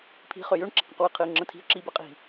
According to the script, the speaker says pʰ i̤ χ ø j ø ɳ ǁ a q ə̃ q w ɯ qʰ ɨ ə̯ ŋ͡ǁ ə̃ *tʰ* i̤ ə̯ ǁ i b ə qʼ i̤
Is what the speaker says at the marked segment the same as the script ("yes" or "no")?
yes